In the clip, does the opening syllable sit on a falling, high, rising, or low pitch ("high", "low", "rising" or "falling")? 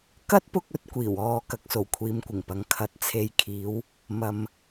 high